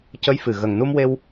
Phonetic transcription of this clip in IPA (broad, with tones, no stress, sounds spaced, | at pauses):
c ə˧˥ j f ɨ˨˩ ɣ ə˨˩ ŋ n u˧ m w e˧ w